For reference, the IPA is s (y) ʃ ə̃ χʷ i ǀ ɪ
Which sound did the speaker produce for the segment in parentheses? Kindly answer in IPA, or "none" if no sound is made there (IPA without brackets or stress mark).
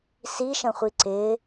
i